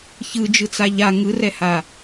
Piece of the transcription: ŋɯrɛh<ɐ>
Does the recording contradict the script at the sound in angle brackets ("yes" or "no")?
yes